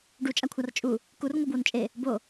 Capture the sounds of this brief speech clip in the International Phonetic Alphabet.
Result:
ɖ u t͡ʃʼ a kʷʰ a r t͡ʃʼ u | k u r ŋʷ ɤ b w o n t͡ʃʼ e | b o

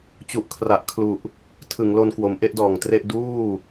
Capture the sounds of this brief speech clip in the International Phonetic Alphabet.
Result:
t͡ɕ u˨˩ ʔ kʰ r a˨˩ ʔ kʰ l u˨˩ ʔ | tʰ ɯ˩˦ ŋ l o˧ n k w o˩˦ m ʔ e˥˩ ʔ d ɔː˨˩ ŋ t r e˥˩ ʔ d uː˥˩

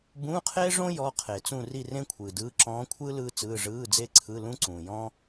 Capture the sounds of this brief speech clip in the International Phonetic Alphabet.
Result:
b ũː˧˥˧ qʰ eː˥ ʐ õ˥ j ɔ˧˥˧ qʰ e˨˩˦ t͡s ũ˥˧ r i˥˧ r ẽ˥ kʷʰ ɯː˨ d ɯː˧˥˧ ǁ ɔ̃ː˧˥ kʷʰ ɯː˥ l ɯː˥ t͡s ɯː˧˥˧ ʐ ɯː˧˥˧ d͡z e˥˧ ǀʰ ɯ˧˥˧ l ũ˥ ǀ ũː˨ j ɔ̃˥

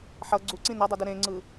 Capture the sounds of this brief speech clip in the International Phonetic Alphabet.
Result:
ħ ʌ ɡ͡ǀ u ǀ ĩ n ʌ dˤ ʌ d ɯ ɾ ẽ ŋ͡ǀ ɯ

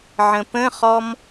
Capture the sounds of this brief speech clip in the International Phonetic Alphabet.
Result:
ʕ ə̃ p ə̃ χ ɔ m

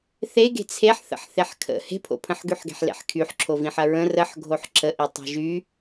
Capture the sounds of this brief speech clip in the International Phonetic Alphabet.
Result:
θ e ɡ e̤ t͡sʰ e ħ θ ə̰ ħ θ e ħ kʰ ə̰ h e̤ pʰ o̰ pʰ ə̃ ħ ɡ y ħ ɡ e̤ ħ l ḛ ħ kʰ y ħ ǁʰ o v ĩ ħ ɐ ɹ ə̃ r ə ħ ɡʱ o ħ ǁ ə ʔ i tˤ e̤ ʒ y

